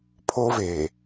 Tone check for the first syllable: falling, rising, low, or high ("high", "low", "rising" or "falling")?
high